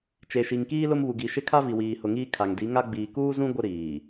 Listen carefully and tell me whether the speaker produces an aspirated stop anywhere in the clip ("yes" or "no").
yes